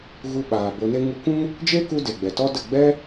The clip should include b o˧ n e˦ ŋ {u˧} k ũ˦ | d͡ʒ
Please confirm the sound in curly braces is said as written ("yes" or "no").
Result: yes